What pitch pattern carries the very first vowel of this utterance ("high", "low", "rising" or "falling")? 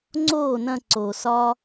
falling